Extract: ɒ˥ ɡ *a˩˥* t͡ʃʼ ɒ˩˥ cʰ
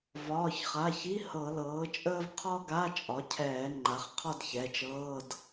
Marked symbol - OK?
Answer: no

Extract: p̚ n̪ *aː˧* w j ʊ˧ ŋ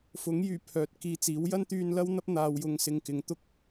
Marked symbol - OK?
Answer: yes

